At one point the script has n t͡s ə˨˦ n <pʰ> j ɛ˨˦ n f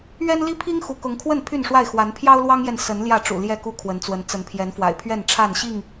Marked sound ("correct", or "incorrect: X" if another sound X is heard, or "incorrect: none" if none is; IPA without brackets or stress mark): correct